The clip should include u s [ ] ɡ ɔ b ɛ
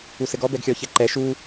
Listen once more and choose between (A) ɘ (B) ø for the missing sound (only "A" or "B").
A